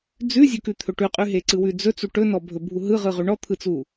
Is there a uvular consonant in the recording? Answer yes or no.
yes